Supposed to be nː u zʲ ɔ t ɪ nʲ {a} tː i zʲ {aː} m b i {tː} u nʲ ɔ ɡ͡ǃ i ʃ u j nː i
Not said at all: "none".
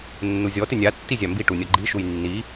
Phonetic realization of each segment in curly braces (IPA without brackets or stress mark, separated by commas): a, a, ʈ